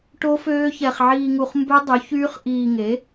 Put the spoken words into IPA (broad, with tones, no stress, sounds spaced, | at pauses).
ʈ o˦˥ f øː˦˥ ç ɛ˧ χ ʕ iː˧ ŋ u˧ χ m b ø˦˥ dˤ y˨˥ ç yː˦˥ χ ʔ iː˧ ŋ e˨˥